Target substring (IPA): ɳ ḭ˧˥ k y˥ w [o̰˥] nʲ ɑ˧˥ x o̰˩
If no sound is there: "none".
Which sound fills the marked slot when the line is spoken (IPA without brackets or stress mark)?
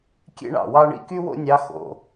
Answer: o̰˥